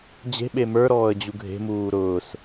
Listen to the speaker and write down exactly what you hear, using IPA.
d͡ʑe̤ɓe mə˞ɾɔːə̯ d͡ʑuɡʱe̤muː ɾʊːs

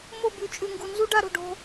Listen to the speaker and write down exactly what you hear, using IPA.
mo˦˨bʉ˨ t͡ʃʼʉ˨ŋɡu˨nzu˦ ɖa˦ɾo̤˨ɖo̤˦

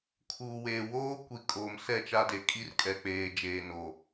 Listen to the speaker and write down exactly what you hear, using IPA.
kʰuː˨weː˨ woː˦kʷi˨ kʼoː˨msɛ˦˨t͡ʃa˦ de˨kʼi˦rkʼɛ˨ k͡peː˨d͡ʒeː˨no˨

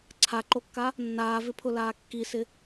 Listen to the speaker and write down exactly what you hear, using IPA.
ǀʰaǃokːa | nːaːvɪpʰʊlaː kːisɪ

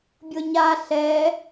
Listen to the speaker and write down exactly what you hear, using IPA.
bʲɤɲa ɬɛ

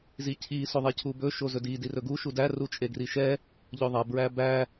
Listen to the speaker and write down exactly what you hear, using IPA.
zicʰi soðˤecʰubɵ ʃozɵdi dirɵɡu ʃudæ rut͡ʃʼeɡriʃɛ | ʎɵðˤæ bɹæbæ

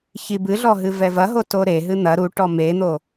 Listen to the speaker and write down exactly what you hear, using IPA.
çibɨɮɔ ɦɨvɛvɐɦo toɾeɦɨ n̪ɐ ɾuʈɔ men̪o

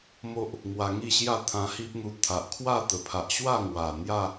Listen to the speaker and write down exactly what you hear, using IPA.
mo˦ʔ | ŋwa˧ŋi˥˧ɕja˥˧ t̪ʰã˧hi˦p̚n̪u˧ t̪ʰa˨ʔkʰwa˥˧t̪ə˨˩pʰa˨ʔ ɕwa˥˧ŋwa˨˩ n̪ja˥˧

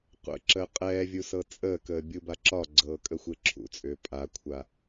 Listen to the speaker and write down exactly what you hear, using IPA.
qʷə̰ǁəː qʼɛːvʲu sɤt͡sʼəːkəː bʲubaǁɒɡ͡ǀɤː kʼəxʷeǁʰṵt͡sʼʏː pʼakʷʰa

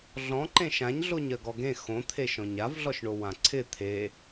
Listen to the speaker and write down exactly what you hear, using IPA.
ɮɔ̃ ǃẽʃãɲɮoɲ ɜɡɔɡẽ xõt̪ʰeʃɔ̃ɲ avɮɔʃɳo wãǀʰɪ t̪ʰe

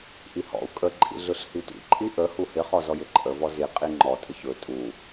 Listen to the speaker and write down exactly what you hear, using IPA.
ʔihɔ̰u̯ kʼə ǃʼḭɮɯɬhitʷḭ ǃʼiʔə huhɪ χɔzɔjɪǃʼə vɔzi qʼiŋ͡ǃɔ tʼɪçɵ tʼu

